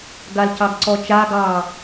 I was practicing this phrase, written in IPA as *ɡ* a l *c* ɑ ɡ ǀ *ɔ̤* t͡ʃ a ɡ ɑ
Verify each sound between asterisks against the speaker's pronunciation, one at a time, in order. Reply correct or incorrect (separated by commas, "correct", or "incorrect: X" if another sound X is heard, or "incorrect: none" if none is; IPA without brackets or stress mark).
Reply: correct, correct, incorrect: ɔ